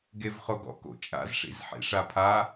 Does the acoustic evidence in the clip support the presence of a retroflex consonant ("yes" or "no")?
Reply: yes